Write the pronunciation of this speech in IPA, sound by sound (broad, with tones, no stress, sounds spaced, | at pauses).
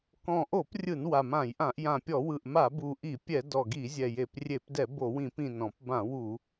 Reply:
k ɔ̃˨˩ ʔ o˧˩˧ p rʲ ɯ˧˩˧ n w a˨˩ m ã˧˩˧ j ʔ ã˧˩˧ ʔ j ã˨˩ pʲ ɔ˧˩˧ w ɯ˨˩ ʔ m a˧˩˧ b u˨˩ ʔ i˧˩˧ pʲ ɛ˧˩˧ d ɔ˨˩ ɡ i˧˩˧ zʲ ɛ˨˩ j e˧˩˧ p rʲ e˧˩˧ p d ɛ˧˩˧ b o˧˩˧ w ĩ˧˩˧ p ĩ˨˩ n ɔ̃˧˩˧ p b ã˧˩˧ w u˧˩˧